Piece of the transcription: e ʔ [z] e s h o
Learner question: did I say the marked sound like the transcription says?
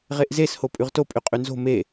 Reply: yes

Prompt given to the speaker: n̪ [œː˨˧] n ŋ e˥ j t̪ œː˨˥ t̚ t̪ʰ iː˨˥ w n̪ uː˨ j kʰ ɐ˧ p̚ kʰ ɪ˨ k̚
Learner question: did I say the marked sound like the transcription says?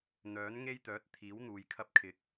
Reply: no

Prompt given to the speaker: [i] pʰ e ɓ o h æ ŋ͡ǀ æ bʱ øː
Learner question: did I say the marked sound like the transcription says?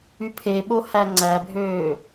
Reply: no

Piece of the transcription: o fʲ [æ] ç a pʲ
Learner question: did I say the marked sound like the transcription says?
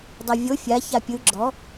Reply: no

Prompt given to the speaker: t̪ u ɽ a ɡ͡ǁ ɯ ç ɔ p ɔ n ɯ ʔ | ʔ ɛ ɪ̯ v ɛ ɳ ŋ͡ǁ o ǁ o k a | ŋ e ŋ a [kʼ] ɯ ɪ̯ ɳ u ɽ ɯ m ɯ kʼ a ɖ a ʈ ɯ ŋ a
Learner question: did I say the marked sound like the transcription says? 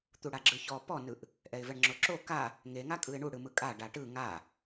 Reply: yes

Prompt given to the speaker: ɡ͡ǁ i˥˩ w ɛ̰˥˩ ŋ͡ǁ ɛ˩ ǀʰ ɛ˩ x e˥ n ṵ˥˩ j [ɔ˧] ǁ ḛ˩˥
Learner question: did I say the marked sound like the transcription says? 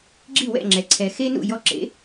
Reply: yes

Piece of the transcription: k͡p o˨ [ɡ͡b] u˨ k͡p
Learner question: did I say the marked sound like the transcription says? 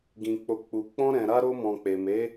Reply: no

